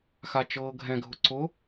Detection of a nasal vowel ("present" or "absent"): present